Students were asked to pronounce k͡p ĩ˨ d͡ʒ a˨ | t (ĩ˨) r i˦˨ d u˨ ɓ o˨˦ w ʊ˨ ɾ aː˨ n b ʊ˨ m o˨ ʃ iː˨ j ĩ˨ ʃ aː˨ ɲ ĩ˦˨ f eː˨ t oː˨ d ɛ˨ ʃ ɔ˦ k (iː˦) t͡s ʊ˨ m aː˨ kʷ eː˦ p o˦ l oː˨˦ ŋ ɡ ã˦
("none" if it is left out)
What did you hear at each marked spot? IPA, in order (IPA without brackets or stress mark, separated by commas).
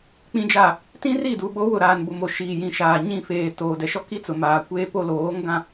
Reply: ĩ˦, i˦